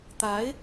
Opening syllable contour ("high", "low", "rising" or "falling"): rising